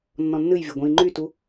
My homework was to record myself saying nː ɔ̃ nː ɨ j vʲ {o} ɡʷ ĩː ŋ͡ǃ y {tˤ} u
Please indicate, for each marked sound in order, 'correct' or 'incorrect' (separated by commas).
incorrect, incorrect